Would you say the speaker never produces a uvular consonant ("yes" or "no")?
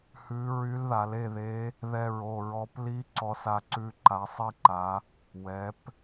yes